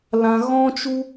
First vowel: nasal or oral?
nasal